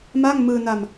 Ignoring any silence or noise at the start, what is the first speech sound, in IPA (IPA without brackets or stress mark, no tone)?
m